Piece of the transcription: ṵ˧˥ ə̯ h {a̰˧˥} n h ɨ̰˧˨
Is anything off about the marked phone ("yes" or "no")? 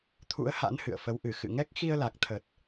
no